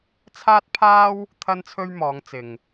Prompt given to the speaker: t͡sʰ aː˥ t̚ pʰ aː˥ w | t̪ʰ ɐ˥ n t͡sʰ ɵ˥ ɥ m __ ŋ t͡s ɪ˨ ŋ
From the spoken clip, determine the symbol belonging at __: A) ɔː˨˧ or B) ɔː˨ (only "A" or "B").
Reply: A